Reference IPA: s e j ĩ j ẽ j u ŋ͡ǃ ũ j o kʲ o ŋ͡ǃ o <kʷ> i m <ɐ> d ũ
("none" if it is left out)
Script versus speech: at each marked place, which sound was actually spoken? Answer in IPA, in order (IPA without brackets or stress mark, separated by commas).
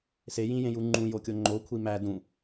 kʷʰ, æ